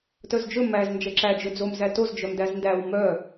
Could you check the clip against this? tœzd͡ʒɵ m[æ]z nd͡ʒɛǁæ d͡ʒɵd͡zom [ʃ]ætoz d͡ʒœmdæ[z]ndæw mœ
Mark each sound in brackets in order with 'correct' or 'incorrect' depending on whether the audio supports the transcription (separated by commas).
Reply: correct, incorrect, correct